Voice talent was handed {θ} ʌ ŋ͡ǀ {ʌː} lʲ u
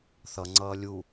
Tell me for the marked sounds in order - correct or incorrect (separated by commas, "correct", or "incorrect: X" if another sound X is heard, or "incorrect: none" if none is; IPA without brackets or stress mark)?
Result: correct, correct